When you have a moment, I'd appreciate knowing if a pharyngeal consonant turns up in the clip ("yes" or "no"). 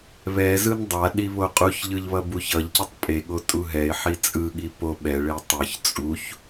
yes